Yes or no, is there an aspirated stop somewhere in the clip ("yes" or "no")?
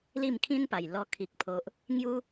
yes